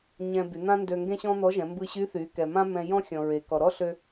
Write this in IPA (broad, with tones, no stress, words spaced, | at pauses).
ɲɛ̃˧by˩˧n̪ã˥ndø˧ ŋɡẽ˥ɕɔ̃˥n̪ɔ˧˥ʒɛ̃˩˧ mbɯ˧ɕy˧˥θy˩˧ kɛ˩mã˥mɛ̃˧ jɔ̃˥xʲɔ̃˩ ɹe˩ kɔ˩ɾɔ˥ɬø˧